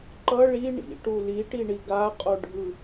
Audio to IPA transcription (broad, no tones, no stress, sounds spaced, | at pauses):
ǃ ʌ ɭ i ɳ ḭ ʈ u l i ʈ i ɳ i ɡ a qʼ o ɖʱ ɯ